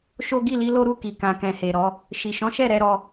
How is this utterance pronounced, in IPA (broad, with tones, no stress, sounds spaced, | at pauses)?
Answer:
ʃ o˦ ɡ i˦˨ l i˨˦ l o˦ ɾ u˦˨ k i˨ k ã˨ k ɛ̃˨ h e˨ ɾ ɔ˨˦ | ʃ i˨ ʃ ɔ̃˨˦ ʃ ɛ˦˨ ɾ ɛ˨˦ ɾ ɔ˧